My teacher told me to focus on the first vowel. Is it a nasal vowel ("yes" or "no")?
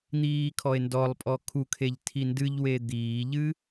no